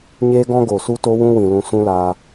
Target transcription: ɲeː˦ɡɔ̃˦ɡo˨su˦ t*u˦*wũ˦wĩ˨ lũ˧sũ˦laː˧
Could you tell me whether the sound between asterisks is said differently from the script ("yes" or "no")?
yes